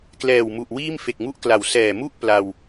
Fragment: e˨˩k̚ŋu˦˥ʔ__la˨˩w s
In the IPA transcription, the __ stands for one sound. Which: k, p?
k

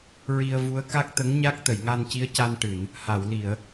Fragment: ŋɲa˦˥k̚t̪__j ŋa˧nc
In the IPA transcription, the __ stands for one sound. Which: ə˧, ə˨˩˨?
ə˨˩˨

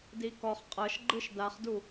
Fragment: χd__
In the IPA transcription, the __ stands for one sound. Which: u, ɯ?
u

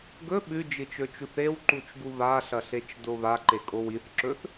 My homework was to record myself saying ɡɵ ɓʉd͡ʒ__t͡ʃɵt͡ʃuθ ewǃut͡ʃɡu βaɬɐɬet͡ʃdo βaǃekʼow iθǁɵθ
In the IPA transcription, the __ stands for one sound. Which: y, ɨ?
ɨ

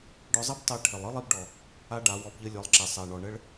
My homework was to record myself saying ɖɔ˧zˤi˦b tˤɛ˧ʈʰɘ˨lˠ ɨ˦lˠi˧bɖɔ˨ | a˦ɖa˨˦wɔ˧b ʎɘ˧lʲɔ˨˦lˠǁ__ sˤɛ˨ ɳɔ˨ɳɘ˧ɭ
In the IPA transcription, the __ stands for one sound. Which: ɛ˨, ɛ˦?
ɛ˨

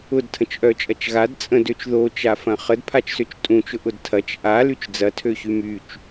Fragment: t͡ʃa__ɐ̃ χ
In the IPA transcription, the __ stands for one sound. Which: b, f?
f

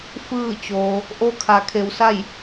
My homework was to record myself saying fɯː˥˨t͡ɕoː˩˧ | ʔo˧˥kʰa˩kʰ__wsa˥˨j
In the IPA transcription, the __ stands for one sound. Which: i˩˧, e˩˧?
e˩˧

